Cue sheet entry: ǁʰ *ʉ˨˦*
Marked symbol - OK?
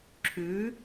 yes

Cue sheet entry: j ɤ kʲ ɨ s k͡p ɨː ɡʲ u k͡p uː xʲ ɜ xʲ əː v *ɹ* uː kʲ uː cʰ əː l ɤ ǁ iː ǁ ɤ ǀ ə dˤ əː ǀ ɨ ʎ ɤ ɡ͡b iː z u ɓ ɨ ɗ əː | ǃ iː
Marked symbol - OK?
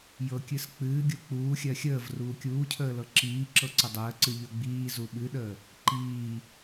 no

